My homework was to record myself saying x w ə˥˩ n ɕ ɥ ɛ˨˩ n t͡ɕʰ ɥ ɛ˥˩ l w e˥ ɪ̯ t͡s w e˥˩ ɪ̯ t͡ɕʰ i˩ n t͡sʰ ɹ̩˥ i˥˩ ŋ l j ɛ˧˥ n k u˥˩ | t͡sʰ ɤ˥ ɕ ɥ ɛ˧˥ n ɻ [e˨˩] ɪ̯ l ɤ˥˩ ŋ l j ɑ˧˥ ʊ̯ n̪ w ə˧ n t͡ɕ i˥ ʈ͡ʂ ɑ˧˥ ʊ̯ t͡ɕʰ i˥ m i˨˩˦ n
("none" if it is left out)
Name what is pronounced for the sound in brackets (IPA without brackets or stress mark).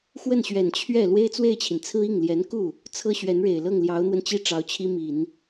e˨˩